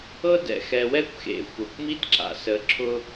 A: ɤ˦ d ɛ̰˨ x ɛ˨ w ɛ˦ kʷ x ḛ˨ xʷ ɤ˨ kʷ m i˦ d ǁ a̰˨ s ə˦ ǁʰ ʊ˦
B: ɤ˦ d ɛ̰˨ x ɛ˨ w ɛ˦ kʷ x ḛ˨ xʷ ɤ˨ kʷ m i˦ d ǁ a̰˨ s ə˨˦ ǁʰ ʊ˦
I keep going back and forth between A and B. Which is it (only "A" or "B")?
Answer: B